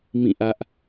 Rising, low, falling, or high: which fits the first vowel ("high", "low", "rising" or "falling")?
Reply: falling